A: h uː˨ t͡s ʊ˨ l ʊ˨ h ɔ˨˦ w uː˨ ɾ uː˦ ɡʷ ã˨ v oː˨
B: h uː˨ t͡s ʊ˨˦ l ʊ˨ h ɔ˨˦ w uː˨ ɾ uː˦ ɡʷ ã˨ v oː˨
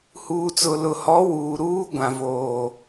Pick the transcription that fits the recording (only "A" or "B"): A